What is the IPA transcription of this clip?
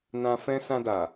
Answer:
nã˧fɛ̃˦ sã˧da˨

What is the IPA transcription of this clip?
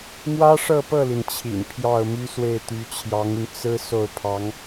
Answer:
mwä˥ʂɤ˥˧pɤ˥˩li˩n t͡ɕʰḭ˨˩n pʰjɑ˥˩ʊ̯my˥swe˥˩ɪ̯ t̪y˧˥t͡ɕʰjɑ˧˥ŋy˧n t͡sɹ̩˥ so˥˩ʊ̯pʰɑ˧˥ŋ

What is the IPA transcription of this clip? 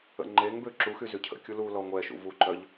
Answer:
ə̰ŋ͡ǃeŋbø ǁuxy zycʰə̰kʲu lu lɔŋʷɛʃṵ vuǃœʎ

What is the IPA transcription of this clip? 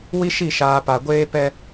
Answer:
wi˦ʃi˦˨ ʃaː˨ pa˨ɡʷeː˦pɛ˦

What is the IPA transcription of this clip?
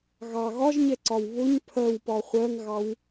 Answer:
ɣɑ ɣɒʒɲɛǀɒw βʊɲ pʰɜwpɒ χʷɜŋɣɑw

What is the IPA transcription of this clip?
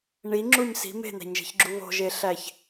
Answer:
ɳiŋ͡ǁuɲ si̤ me̤n̪æ̤ɲʒe̤çɡ͡ǁu βo̤ʒeɬæç

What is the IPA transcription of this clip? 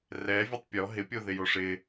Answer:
rɛvʲɛtˤ pʲɔ ɦɪpʲoðɪjo ʂɪ

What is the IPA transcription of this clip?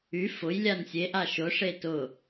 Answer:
y fʊj lʲansʲeʔa ʃʊʂe tʊ

